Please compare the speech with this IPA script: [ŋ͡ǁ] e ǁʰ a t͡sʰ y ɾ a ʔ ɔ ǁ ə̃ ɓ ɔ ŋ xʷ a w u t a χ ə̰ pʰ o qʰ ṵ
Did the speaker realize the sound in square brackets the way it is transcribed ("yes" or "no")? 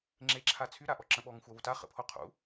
yes